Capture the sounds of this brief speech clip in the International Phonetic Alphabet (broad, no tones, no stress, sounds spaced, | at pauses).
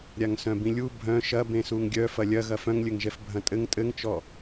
ɾʲ a ŋ s œ̃ b ĩ lʲ u bʱ œ̃ ʃ ɐ b ẽ s u ŋ ɡʲ œ f ɐ lʲ ɐ ɣ ɐ f œ̃ ŋ lʲ ɘ ŋ ʒ ɛ f bʱ ɐ̃ tʼ ɘ ŋ tʼ ɘ ŋ t͡ʃ ɔ